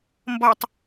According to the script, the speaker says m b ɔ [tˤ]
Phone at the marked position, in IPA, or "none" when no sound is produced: tˤ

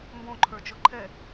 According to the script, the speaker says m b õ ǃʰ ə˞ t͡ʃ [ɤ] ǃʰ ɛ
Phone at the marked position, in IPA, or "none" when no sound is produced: ɤ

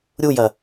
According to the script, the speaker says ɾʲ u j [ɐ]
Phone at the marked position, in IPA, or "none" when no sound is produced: ɐ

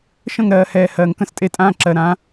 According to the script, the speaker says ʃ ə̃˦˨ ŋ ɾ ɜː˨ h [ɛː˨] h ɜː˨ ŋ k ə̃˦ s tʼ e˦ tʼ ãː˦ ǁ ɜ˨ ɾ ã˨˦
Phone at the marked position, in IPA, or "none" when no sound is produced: ɛː˨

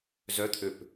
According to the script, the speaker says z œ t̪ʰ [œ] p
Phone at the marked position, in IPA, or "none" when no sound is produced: ø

